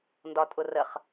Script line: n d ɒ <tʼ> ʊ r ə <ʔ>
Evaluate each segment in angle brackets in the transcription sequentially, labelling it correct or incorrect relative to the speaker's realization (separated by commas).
correct, incorrect